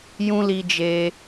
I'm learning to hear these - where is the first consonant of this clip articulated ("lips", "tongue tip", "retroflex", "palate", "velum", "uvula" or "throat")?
palate